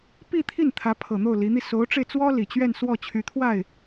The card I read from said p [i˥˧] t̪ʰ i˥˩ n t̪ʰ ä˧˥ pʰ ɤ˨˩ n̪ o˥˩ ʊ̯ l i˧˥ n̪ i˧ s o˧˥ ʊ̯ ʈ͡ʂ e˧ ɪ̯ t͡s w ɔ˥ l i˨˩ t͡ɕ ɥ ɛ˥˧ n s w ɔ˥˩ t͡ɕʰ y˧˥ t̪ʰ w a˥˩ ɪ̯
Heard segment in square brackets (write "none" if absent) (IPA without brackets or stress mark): i˥˧